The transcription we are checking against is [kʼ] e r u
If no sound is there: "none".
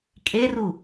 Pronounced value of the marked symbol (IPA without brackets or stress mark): kʼ